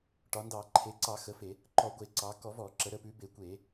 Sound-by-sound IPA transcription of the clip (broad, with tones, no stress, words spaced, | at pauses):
ʈɒ˩˧ndɑ˧˩˧ ǃʰe˩˧ǀɑ˧˩˧xə˩˧ fe˧˩˧ | ǃɔ˧˩˧ɡʷe˧˩˧ǀɑ˩˧ kɔ˧˩˧vɔ˧˩˧ǁə˩˧ ɾə˩˧pʉ˩˧be˧˩˧ kʷe˧˩˧